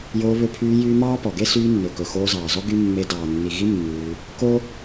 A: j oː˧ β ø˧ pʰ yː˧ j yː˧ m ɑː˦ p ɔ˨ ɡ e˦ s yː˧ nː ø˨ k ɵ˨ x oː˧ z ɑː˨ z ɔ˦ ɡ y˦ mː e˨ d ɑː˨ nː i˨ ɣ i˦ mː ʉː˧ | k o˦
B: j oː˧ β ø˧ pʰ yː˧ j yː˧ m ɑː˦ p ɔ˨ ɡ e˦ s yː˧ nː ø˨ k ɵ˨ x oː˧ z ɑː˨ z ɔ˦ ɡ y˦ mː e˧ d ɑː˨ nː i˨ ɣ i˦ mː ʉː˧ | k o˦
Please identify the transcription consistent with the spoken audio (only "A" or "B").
B